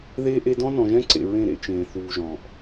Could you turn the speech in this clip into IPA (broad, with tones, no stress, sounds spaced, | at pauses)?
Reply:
ð eː˦ ʔ e˦ d ɔ̃˦ n ɔ̃˨ ʒ ɛ̃˦ ǀ ḛ˨ ɹ ẽ˦˨ ɾ ḛ˦ t͡ʃ ẽː˨ θ uː˨ ʒ ɔ̃ː˨ ʔ